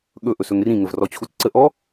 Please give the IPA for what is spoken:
ɠ ɵ ʔ ɵ s ɵ ŋ r ĩ ŋ ə v r ɔ t͡ɕʰ u t͡s ǀ ə ʔ ɔ

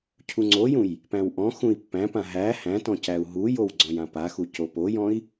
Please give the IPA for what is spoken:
cʰ u ŋ͡ǀ o j ũ j | p æ̃ w ʔ ɔ̃ x ũ i̯ pː æ̃ p ã ɦ æ h æ̃ t ɔ̃ c æ u̯ ɦ u j o w ɡ͡ǀ ɔ̃ j ã p a x u c o p o j ɔ̃ i̯

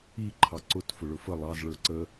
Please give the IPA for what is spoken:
i ǃʰ ɑ ǀ ʊ t f ʊ ɭ ʊ f ə lˠ ɑ z ɭ ə˞ ǀ ə

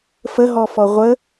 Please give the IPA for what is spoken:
f ə ɦ ɔ f ɔ ʁʷ ə

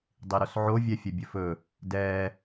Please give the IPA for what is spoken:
dˤ i ɾ o s ʕ o vʲ ɛ fʲ ɵ bʲ ɵ f ɵ | d ɛ

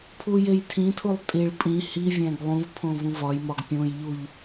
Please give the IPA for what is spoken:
pʰ u j e j tʰ ĩ tʰ u lˠ tʼ i ɭ pʼ ĩ h i vʲ æ̃ ɡ lˠ ũ v pʰ õ v ũ v ɒ j m ɒ ɡ pʲ õ j ʎ u ʎ

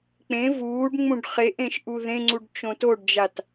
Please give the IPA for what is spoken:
k͡p ẽ v uː ɖ ŋ͡m ũ ɖ χ e ʔ ẽ ʃ ʔ u ð ẽ ŋ͡ǀ u ɖ t͡ʃ õ t o ɖ d͡ʒ a t

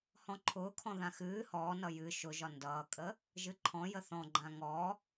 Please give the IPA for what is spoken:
h ɔ̃ ǃʰ ʊː kʰ ɔ̃ ð ã x ɨː h ɔː n ʌ j ɨ ʃ ʊ ʒ ɒ n d ʌː kʼ ə | ʒ ɨ ǃʰ ɔ̃ j ə θ ɔ̃ ɡ͡ǃ ã ŋ ɔ

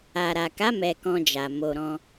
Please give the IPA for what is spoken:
a˨ ɾ a˨ k a˨˦ m ɛ˧ k ɔ̃˧ d͡ʒ a˨ m o˨ ɾ ɔ̃˧

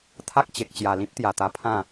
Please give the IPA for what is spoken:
t̪ʰ a˦ k̚ t͡ɕ e˨ k̚ t͡ɕ j a˨˩ l ĩ˦ p̚ t̪ j a˨˩ t̪ a˧ pʰ ã˥˧

